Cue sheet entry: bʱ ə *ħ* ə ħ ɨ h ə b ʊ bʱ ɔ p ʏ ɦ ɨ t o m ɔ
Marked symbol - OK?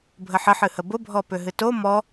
yes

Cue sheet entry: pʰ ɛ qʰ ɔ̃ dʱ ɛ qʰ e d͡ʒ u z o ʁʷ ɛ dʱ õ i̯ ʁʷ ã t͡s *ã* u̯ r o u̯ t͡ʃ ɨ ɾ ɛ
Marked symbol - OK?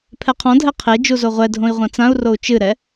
yes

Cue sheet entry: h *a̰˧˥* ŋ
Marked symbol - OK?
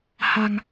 no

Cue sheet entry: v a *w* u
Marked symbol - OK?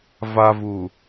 no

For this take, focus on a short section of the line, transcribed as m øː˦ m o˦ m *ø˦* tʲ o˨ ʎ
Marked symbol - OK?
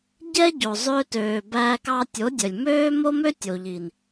yes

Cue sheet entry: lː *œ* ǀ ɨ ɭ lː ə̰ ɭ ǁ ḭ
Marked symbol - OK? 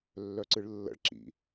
yes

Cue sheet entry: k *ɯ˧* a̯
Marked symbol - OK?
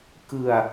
yes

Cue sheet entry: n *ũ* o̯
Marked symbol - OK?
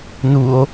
no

